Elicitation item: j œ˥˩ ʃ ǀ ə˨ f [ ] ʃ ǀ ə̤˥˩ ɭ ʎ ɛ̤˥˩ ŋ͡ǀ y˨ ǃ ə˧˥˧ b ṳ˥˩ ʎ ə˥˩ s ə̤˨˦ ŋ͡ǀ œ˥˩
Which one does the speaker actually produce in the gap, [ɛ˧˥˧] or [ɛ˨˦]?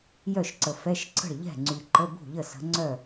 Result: ɛ˧˥˧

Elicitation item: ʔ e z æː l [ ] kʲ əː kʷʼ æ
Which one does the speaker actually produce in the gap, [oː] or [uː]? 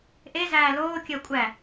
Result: oː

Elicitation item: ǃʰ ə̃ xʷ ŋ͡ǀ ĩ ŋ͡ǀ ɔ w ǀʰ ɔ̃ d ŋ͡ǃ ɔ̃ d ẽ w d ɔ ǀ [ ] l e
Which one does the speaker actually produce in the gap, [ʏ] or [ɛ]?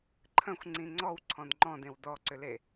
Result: ʏ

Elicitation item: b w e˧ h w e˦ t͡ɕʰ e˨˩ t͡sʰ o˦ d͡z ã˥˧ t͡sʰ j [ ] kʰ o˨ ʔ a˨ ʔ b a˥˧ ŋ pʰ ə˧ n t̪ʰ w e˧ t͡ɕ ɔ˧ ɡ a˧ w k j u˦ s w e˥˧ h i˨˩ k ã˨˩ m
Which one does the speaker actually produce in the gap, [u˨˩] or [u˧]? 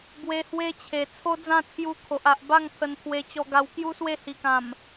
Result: u˧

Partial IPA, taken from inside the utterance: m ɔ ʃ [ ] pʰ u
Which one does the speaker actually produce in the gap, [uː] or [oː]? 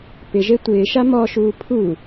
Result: uː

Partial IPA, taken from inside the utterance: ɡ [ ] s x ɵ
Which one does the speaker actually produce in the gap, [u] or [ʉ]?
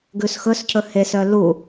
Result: ʉ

